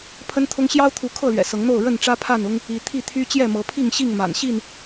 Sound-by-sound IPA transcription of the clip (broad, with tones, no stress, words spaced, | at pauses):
pʰə˦nt̪ʰʊ˦ŋ ɕjɑ˦ʊ̯t̪ʰu˨˦ kʰɤ˥˨lɥɛ̰˨˩sɤ˨˦ŋn̪o˥˨ʊ̯ ɻə˥˨nʈ͡ʂä˦pʰa˥˨nʊ˦ŋ | i˨˦ t̪ʰi˥˨t̪ʰy˦ t͡ɕjɛ˥˨mɤ˨˦pʰi˥˨ŋ ɕi˥˨ŋ ma̰˨˩nɕi˥˨n